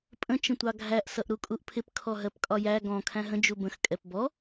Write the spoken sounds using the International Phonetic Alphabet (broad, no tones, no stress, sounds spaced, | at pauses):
pʼ ə̃ t͡ʃ ə̃ tʷ ɑ ɡʱ æ ʔ s ʌ ʔ ɾ u kʼ u ʔ pʰ ɪ p kʰ ɔ ɦ ɜ p kʼ ɒ j æ ɡ ɔ̃ kʰ æ̃ ɦ ə̃ d͡ʒ u b ə̃ x kʼ ɛ p b ɔ